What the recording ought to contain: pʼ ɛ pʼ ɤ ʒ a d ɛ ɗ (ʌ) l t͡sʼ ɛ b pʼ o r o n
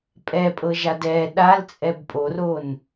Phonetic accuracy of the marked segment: incorrect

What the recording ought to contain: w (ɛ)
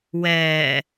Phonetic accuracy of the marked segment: incorrect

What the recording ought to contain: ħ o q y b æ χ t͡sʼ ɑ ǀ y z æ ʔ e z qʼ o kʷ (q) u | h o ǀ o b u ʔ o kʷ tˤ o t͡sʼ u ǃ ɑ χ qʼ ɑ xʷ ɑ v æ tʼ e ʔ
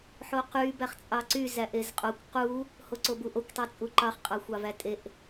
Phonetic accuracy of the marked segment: correct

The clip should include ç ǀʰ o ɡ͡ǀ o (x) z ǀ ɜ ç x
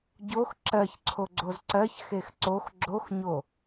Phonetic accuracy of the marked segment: incorrect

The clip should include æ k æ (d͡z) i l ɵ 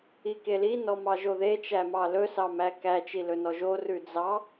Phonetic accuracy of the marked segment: incorrect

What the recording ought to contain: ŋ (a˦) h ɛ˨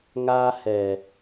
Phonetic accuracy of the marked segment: incorrect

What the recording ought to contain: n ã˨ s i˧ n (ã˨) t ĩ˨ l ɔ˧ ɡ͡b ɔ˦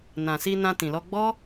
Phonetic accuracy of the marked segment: incorrect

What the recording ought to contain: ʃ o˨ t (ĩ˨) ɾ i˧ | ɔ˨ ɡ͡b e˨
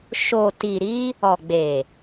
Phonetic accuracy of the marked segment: incorrect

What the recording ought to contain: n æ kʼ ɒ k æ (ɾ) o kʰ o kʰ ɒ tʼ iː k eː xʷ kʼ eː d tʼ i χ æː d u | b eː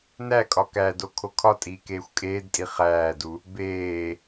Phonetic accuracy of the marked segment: incorrect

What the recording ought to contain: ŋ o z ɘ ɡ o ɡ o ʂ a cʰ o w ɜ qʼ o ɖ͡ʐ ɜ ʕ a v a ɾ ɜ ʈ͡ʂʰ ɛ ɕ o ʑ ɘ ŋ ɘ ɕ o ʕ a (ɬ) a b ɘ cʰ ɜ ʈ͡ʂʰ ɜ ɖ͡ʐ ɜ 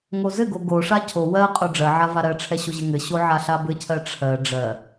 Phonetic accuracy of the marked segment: correct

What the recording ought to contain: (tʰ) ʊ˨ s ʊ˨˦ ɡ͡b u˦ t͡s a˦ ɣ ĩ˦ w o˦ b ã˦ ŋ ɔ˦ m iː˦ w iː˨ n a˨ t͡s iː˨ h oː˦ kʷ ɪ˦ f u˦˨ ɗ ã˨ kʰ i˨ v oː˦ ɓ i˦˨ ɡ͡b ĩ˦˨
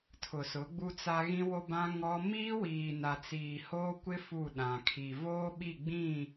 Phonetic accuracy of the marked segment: correct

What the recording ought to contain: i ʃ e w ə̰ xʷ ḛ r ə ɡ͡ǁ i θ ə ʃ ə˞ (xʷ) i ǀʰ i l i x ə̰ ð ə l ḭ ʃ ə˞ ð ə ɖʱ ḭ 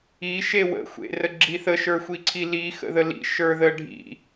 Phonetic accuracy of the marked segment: correct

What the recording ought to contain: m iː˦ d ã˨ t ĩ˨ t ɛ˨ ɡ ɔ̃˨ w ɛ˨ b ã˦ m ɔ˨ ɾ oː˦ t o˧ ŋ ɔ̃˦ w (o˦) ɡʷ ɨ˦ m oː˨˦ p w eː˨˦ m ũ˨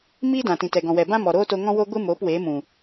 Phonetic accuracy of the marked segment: correct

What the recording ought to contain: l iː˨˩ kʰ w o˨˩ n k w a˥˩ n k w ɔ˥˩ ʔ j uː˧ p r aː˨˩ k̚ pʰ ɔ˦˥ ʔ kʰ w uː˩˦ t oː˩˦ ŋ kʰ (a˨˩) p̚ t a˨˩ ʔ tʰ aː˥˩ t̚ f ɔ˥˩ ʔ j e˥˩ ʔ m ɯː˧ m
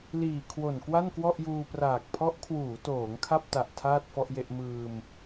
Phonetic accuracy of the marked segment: incorrect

